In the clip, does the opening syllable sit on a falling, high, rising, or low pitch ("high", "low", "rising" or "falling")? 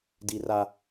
low